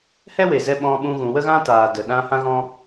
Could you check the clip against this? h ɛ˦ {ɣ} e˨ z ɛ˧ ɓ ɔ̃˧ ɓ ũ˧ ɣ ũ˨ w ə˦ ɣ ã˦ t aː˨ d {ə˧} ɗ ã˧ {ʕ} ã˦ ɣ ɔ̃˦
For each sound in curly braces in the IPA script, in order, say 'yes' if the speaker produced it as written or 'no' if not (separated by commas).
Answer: no, no, no